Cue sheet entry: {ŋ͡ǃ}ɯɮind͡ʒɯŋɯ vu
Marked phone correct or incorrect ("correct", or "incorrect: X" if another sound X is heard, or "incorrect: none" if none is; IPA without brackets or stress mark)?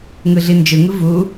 incorrect: ŋ